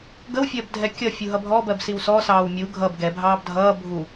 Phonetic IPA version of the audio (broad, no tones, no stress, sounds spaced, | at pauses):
ɡ ə w fʲ ɜ b dʱ ɛ kʲ ʌ fʲ u ɦ ʌ bʱ ɔ b ɜ b s i w s ɔ s ɑː w mʲ u ɡʱ ʌ b ɡ ɛ bʱ ɑː b dʱ ʌː bʱ u